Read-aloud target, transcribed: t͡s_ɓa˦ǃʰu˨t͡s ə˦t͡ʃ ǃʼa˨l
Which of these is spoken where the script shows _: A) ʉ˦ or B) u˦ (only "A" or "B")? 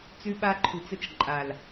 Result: A